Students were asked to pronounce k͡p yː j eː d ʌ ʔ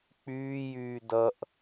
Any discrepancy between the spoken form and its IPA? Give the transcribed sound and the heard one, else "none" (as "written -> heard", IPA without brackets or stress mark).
eː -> yː